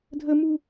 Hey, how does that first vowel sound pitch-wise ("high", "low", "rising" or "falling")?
high